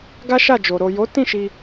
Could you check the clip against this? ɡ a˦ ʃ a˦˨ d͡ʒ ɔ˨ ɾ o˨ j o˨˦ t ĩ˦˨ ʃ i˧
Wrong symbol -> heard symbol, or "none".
ɔ˨ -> o˨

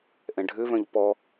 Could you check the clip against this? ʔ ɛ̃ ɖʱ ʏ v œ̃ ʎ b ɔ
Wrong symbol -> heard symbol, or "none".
b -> p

